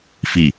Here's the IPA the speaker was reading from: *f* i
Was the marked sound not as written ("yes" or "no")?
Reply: no